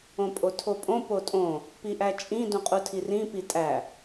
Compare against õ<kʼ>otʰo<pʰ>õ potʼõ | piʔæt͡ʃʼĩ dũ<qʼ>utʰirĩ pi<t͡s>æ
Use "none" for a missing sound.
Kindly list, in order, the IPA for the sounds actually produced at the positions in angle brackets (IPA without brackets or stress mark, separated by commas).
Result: pʼ, pʼ, qʼ, tʼ